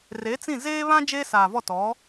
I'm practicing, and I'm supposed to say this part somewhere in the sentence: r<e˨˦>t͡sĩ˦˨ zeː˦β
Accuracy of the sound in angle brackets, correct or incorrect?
correct